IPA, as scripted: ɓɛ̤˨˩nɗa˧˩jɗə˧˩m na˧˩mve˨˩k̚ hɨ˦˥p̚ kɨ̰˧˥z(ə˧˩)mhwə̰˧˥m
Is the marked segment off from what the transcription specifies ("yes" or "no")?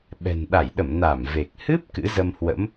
yes